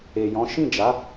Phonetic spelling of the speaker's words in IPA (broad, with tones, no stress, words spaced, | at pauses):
e˨jɔ̃˨˦ ʃĩ˦˨d͡ʒa˨˦